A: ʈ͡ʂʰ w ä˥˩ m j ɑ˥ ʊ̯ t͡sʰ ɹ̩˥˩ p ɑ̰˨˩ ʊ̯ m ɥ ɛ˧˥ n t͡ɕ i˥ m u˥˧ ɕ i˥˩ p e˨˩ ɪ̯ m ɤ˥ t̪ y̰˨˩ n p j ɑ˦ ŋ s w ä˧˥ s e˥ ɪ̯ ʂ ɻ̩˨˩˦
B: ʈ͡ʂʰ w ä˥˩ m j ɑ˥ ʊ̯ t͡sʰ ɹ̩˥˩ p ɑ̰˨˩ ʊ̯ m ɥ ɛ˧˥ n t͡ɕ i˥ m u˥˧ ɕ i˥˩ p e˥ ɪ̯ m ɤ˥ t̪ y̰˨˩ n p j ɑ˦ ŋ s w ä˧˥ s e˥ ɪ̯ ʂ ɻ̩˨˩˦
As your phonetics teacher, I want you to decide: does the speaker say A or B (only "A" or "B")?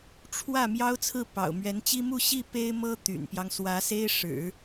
B